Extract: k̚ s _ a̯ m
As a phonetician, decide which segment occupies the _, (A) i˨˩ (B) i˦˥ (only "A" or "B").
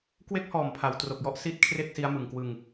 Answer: B